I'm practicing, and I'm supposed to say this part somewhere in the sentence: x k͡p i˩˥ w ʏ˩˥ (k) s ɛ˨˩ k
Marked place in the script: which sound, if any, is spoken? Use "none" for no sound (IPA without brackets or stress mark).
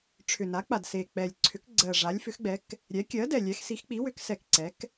k